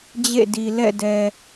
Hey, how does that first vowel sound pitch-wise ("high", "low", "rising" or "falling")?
falling